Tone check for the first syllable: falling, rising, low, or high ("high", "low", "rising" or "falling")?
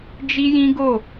high